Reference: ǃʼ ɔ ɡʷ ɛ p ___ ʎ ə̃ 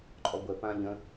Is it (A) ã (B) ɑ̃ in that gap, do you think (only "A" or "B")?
A